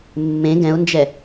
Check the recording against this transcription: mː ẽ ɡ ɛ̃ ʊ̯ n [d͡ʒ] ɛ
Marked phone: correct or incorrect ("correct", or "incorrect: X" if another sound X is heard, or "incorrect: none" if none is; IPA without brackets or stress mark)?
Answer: correct